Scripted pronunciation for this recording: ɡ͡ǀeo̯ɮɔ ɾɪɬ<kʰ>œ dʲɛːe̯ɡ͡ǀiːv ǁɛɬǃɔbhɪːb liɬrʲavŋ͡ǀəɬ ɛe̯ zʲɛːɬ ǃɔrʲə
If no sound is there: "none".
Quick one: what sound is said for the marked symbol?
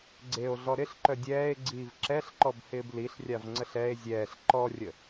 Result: ǃ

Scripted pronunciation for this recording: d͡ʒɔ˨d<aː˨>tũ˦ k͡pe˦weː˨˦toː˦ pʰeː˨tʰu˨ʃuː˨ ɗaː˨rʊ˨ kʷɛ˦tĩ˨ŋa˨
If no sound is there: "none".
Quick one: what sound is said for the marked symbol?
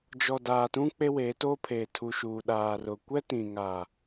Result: aː˨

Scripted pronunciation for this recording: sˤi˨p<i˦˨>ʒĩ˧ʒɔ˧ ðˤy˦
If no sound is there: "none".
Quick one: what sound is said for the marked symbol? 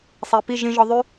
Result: i˦˨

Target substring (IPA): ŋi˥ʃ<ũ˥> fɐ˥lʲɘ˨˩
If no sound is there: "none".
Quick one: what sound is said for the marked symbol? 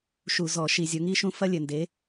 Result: ũ˥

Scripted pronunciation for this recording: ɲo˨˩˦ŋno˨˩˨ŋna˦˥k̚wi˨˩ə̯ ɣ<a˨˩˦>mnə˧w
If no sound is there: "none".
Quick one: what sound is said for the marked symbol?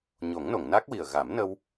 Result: a˨˩˦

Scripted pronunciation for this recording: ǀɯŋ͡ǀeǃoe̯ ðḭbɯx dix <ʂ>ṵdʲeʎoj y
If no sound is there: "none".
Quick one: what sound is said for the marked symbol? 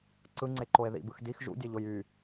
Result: ʒ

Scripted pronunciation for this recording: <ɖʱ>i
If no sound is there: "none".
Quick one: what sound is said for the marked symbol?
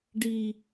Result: ɖ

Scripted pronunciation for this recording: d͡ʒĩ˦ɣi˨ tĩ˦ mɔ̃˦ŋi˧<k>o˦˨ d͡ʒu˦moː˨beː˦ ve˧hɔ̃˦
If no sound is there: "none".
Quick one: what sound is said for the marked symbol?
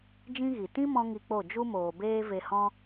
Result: k͡p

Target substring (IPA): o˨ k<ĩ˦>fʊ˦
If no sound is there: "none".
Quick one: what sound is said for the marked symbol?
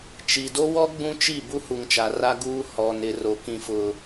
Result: ĩ˦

